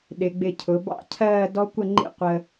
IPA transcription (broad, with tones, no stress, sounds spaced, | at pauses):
ɗ ɪ˩˧ ɡ͡b ɪ˧˩ cʰ ʊ˩˧ b ɑ̰˥ cʰ ɜː˥˧ d ɔ˥ kʷ ə˥˧ ŋ͡ǃ ḭ˥˧ qʷ ə˧